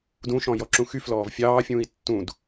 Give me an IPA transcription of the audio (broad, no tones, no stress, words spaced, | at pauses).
dũʃɔ̃ jɔǁũxyflɔːv fʲɑːfʲũːi̯ tːũd